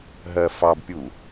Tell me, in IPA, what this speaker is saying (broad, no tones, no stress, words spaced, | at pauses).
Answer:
ɦɜfɑbpʲu